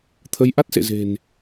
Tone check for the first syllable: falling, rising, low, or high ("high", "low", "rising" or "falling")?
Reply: rising